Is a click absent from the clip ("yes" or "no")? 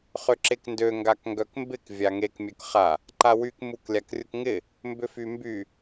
no